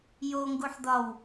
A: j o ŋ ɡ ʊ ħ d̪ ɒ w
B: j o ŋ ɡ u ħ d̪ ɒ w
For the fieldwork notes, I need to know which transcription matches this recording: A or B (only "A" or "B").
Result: B